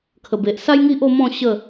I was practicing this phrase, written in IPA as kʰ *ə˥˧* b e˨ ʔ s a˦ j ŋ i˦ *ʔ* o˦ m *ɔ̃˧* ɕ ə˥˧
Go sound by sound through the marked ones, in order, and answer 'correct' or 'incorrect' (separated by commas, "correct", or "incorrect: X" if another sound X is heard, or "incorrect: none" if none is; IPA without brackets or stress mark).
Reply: incorrect: ə˨˩, correct, incorrect: ɔ̃˥˧